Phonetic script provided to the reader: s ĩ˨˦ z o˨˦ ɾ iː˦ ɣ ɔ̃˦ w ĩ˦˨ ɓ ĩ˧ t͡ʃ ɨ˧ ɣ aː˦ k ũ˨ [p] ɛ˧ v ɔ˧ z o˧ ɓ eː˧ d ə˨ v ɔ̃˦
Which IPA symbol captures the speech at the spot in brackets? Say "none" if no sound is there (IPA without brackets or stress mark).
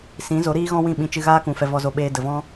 f